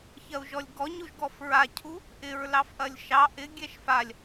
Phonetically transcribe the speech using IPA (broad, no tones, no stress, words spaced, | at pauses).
çɐu̯ʒɔlʲɡɔɲuʒ ɡɔfɹacʰu | ʔɪɹ lɑfʔɐlʲʃɑ ʔɪ ɡʲɛʃfalʲ